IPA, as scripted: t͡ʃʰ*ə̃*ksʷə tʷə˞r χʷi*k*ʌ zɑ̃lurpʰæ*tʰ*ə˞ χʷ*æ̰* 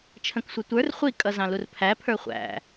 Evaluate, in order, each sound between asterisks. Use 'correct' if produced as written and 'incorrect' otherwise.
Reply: correct, incorrect: kʼ, incorrect: pʰ, correct

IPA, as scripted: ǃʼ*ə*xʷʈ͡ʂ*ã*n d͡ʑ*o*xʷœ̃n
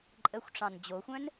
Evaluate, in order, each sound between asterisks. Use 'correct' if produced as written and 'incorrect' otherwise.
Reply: correct, incorrect: ɑ̃, correct

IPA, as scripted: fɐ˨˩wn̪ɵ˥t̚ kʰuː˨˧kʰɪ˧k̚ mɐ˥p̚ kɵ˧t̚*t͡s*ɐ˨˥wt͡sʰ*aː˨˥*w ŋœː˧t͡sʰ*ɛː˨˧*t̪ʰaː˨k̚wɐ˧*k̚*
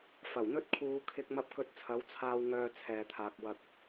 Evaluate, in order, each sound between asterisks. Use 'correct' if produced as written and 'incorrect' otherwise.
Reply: incorrect: t͡sʰ, incorrect: aː˧, incorrect: ɛː˨, correct

